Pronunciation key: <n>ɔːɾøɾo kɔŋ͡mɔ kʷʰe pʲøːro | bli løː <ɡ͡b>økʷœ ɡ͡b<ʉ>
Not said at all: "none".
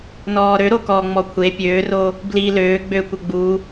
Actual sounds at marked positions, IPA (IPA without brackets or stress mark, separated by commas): n, ɡ͡b, u